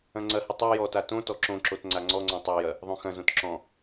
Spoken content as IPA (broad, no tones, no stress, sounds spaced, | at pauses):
ɐ̃ ŋ͡ǀ ɐ h ɨ tˤ o j ɔ t a t õ t ɔ ǁ õ ǁ o t ŋ͡ǀ a ŋ͡ǀ ɔ ŋ͡ǀ ɔ̃ tˤ a j ɐ | ðˤ õ x ɐ̃ z õ t ǁ ɔ̃